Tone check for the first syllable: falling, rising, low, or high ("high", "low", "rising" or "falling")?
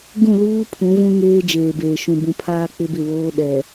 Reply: falling